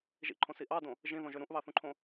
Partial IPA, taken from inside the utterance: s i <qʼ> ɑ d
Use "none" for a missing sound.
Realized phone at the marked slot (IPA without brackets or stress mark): ʔ